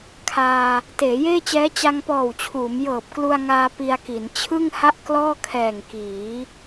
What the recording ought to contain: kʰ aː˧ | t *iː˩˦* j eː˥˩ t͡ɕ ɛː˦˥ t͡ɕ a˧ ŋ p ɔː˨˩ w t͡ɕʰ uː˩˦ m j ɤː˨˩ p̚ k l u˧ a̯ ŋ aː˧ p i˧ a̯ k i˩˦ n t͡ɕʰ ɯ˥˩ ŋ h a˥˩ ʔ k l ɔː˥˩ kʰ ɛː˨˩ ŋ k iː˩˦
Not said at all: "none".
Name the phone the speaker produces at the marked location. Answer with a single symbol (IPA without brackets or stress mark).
eː˩˦